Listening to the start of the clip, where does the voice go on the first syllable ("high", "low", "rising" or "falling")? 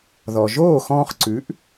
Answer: low